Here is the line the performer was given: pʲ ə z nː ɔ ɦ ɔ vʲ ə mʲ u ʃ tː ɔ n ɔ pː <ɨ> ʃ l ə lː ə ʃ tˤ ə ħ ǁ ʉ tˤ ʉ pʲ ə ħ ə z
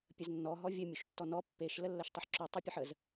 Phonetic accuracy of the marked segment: incorrect: e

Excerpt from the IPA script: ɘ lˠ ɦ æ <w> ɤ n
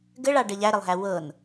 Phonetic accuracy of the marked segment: correct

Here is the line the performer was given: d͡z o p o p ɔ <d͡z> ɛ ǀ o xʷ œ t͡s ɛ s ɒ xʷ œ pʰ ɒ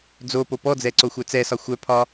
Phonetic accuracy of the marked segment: correct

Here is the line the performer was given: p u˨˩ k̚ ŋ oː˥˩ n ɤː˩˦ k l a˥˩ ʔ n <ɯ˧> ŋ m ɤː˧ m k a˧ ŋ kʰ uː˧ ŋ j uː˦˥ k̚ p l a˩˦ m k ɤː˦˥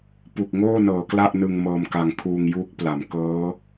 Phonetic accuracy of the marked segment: correct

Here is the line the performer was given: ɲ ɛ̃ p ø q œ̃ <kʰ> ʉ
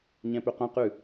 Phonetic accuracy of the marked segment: incorrect: q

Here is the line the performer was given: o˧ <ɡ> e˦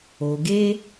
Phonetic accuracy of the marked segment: correct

